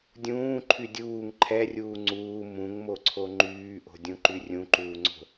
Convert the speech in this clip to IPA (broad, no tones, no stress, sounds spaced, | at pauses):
dʲ ũː ǃʰ y dʲ uː ŋ ǃʰ ɛ rʲ uː ŋ͡ǀ uː m ũ ŋ m o ǀʰ o ŋ͡ǃ yː ʔ o̤ dʲ ũ ǃ y rʲ ũ ǃ uː ŋ͡ǀ o̤